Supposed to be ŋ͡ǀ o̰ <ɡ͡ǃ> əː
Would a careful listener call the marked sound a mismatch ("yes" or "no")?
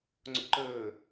yes